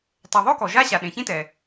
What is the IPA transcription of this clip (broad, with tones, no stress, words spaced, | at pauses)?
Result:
tˤɛ˩ðˤo˥ kɔ˩ʒa˥ɕa˩ ɗẽ˩çĩ˥tɛ˩